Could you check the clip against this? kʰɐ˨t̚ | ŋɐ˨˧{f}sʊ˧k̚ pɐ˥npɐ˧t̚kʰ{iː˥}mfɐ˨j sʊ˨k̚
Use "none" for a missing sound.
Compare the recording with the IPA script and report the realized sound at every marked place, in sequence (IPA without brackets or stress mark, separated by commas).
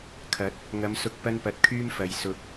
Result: m, yː˥